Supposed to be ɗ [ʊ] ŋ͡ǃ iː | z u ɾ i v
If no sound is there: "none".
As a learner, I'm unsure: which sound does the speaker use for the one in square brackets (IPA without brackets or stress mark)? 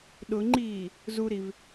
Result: ʊ